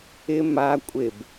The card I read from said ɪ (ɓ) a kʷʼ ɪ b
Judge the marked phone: incorrect: m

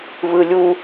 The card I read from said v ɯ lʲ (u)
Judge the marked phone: correct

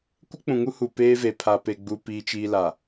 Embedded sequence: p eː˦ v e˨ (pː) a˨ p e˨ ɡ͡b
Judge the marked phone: incorrect: pʰ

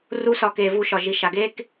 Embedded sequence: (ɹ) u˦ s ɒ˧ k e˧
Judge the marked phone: incorrect: r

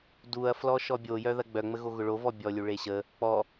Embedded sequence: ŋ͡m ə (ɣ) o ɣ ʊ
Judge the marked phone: correct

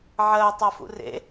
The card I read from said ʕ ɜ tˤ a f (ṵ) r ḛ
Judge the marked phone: correct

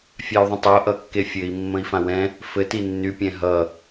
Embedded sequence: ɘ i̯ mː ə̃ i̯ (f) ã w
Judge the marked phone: correct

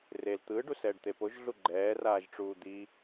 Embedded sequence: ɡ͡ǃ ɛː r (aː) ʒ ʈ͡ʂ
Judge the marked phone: correct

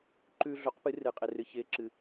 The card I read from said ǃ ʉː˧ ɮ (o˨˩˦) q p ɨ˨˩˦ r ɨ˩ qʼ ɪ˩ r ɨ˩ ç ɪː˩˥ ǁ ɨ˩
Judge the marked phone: incorrect: o˩˥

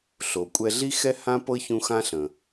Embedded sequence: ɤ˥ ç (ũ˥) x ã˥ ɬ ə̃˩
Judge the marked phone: incorrect: ũ˦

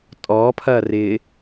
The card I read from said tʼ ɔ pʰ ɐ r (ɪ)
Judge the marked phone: correct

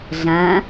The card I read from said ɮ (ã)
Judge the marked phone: correct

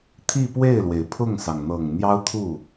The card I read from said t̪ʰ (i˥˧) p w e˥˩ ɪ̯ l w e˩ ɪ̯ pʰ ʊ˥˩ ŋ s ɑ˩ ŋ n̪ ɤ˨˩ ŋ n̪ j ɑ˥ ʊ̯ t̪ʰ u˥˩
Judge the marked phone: correct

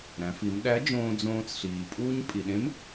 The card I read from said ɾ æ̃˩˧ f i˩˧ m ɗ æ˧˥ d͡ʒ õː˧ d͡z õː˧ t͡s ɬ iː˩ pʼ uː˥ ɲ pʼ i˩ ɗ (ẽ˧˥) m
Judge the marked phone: correct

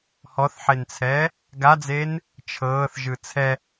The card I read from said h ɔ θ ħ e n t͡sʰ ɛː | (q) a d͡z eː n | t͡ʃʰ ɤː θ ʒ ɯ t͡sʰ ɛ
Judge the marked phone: incorrect: ɡ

